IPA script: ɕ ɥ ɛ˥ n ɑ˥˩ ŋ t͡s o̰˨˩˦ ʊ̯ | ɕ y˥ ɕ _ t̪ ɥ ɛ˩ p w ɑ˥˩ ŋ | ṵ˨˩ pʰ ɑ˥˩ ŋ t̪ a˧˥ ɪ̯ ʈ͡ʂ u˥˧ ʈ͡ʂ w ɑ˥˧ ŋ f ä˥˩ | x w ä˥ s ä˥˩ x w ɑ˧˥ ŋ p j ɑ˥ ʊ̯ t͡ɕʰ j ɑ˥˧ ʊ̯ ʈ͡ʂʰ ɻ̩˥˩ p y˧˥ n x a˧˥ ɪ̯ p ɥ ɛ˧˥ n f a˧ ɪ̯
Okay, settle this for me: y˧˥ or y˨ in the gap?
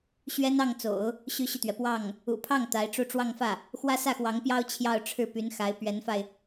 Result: y˨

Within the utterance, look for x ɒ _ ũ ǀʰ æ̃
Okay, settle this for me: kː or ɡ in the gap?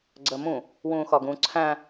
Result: ɡ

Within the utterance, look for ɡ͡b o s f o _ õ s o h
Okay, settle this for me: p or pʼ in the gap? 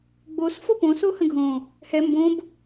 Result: p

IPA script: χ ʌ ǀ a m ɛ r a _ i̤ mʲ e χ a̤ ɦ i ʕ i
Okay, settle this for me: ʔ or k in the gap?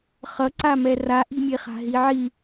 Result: ʔ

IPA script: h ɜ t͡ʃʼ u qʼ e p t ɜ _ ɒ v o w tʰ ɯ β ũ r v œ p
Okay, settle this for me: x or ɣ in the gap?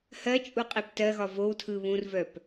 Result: ɣ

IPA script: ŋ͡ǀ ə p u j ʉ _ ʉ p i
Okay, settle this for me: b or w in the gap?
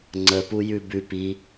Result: b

